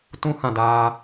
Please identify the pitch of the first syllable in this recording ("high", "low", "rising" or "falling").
high